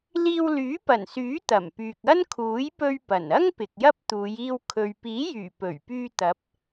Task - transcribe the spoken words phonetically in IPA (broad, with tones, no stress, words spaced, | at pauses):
liː˧wlyː˨˥pɐ˨˩nsyː˨˥ t̪ɐ˨˩mpyː˨k̚ ɐ˥nkʰuː˨˥j pɵ˧ɥ pɐ˨˩n ɐ˥ŋ pɪ˨k̚jɐ˥p̚t̪uː˨˧j iː˧wkʰɵ˨ɥ piː˨˥jyː˨˩ pɵ˨˩ɥpyː˧ t̪ɐ˨˥p̚